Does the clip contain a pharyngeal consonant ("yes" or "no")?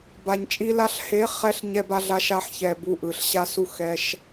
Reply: yes